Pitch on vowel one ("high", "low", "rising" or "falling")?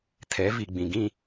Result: rising